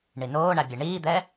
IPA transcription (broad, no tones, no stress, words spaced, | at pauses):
ɳinoːɳa bʲɛɳiːd̪ɛ